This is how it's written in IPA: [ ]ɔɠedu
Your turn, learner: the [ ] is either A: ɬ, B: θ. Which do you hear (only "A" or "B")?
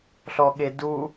A